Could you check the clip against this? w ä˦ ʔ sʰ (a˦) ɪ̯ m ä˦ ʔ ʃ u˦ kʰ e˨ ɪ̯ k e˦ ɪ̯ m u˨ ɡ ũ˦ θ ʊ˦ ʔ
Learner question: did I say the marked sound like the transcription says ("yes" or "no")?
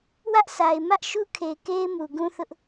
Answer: no